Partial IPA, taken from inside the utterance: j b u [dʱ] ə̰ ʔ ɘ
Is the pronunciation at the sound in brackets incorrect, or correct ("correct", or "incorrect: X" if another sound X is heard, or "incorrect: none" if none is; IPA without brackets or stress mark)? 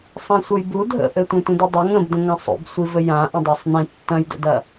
correct